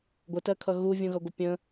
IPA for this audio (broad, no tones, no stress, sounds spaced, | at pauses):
ɡʷ ə t ɜ kʰ ʌ ɣ u vʲ ũ ɣ ʌ ɡʷ ɪ pʲ ə̃